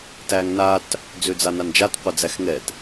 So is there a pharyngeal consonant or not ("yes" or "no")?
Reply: no